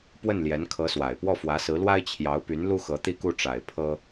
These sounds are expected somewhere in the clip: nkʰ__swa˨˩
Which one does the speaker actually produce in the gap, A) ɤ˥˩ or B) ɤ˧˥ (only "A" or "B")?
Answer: B